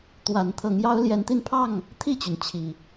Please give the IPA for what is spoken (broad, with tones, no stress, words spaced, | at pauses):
t̪wa˨˦n t̪ʰɤ˨˦ŋjɑ˦ʊ̯ ljɛ˨˦nt̪i˧npʰɑ˥˨ŋ | t̪ʰi˥˨t͡ɕy˩n t͡ɕʰi˨˩